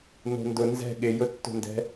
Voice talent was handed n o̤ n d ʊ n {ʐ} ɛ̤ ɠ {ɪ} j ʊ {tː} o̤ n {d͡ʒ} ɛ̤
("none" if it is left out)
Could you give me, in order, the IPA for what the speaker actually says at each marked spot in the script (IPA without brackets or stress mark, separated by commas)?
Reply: z, ɪ, tː, d